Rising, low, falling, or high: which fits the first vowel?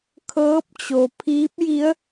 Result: rising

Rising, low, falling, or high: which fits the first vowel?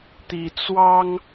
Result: low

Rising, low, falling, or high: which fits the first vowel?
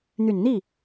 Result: low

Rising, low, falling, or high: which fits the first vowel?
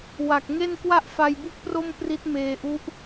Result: low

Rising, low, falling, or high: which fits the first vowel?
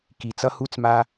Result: low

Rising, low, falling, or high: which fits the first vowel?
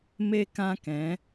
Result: high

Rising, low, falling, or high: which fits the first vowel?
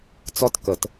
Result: falling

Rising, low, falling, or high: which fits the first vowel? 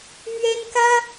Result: high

